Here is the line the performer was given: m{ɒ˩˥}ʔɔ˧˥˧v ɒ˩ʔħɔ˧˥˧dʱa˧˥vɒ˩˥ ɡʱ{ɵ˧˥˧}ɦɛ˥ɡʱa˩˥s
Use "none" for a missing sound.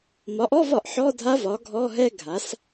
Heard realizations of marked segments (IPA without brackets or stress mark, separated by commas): ɒ˩˥, ɔ˧˥˧